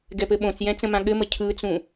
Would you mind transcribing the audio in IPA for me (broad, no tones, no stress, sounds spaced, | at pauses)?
ɡ ɛ p ɘ ɓ õ t͡s j ɛ̃ t͡s ə̃ m ã ɠ ɘ m ə cʰ ɯ t͡s ũ